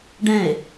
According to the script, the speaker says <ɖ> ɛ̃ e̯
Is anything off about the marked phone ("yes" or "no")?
no